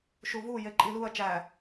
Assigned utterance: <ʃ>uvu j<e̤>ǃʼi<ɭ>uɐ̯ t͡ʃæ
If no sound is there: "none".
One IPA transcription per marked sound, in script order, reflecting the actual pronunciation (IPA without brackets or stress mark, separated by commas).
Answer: ʃ, e, l